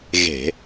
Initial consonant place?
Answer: velar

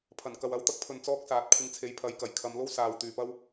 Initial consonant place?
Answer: labial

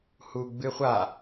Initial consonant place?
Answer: glottal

